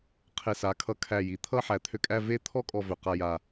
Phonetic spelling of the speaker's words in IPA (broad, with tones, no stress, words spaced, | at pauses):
qʰe˧˩sa˩˧ kʰʌ˧kʰæ˧˩ ji˩˧ t̪ʰʌ˥˧ħæ˩˧t̪ʰø˧kʼæ˥˧ ve˥˧t̪ʰɔ˥ kʼɔ˥˧vø˧˩qa˥˧ja˧˩